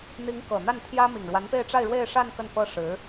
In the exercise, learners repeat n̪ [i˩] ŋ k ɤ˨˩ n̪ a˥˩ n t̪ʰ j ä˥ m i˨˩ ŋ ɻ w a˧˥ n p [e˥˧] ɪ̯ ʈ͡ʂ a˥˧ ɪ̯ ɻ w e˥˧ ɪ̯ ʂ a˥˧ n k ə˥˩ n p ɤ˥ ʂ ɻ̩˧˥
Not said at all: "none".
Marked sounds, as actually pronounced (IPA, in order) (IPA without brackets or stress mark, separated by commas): i˧˥, e˥˧